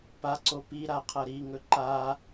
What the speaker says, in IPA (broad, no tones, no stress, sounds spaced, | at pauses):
p a ǀ o p i ɾ a qʰ ɐ ɾ i ŋ ɵ ǃ a